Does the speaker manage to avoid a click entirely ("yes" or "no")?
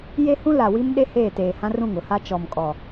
yes